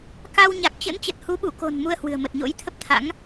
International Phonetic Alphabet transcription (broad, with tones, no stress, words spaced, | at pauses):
ka˧w ɲa˨˩k̚t͡ɕə̰˧˥n t͡ɕə˨˩t̚hu˨˦ɓu˧˩ko̤˨˩n mu˧ə̯hwɨ̤˨˩ə̯mə˨˩t̚ ɲo̰˧˥jt̪ʰə˦˥p̚t̪ʰa̰˧˥ŋ